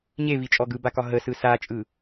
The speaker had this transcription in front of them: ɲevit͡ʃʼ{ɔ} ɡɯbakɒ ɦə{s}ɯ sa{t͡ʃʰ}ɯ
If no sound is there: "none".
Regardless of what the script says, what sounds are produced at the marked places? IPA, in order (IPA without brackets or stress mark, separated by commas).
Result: ɔ, s, t͡ʃʼ